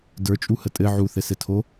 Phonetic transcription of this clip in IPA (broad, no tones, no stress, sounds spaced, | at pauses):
d ə˞ t͡ʃʼ u h ə tʼ ɘ ʕ u θ ɘ s ɘ tʰ o